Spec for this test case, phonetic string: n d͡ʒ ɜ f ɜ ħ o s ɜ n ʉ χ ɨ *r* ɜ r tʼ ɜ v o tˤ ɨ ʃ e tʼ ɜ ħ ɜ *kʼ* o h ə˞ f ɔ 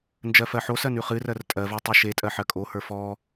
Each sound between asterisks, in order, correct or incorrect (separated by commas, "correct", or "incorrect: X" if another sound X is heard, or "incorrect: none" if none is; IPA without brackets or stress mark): correct, correct